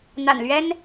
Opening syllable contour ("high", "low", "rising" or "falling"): low